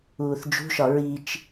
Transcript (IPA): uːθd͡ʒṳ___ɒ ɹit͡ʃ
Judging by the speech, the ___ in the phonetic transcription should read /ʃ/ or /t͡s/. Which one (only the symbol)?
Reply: ʃ